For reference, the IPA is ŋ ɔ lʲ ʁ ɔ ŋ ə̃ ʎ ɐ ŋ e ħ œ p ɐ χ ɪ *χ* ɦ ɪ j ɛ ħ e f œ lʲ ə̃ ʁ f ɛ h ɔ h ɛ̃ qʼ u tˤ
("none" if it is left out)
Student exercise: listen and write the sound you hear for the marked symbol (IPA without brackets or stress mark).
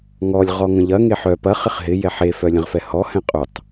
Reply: χ